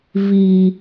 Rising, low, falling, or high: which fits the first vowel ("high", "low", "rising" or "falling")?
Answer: low